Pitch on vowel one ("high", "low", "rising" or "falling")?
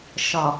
low